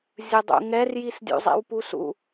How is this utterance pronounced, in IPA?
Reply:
zʲ ɯ dˤ ṵ ŋ ɛ r j i s dʲ ṵ zˤ ḛ w p u s ṵ

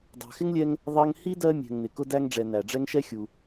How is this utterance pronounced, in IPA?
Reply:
dˤ ɑ̤˨ x ɪ˥ ŋ lʲ ɛ˦ ŋ | ðˤ ɜ˦ ŋ h i˥ d ɜ˦ mʲ ɛ̤˨ ŋ n ɪ˩ k ʊ˦ d æ˦ ŋ ɖ͡ʐ ɛ˨ n æ˩ ɖ͡ʐ ɛ˦ ŋ ʃ ɛ˥ xʲ u˨

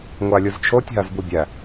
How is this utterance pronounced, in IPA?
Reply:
ŋʷ a lʲ u z t͡ʃʰ o tʲ ɦ a z b u bʲ æ

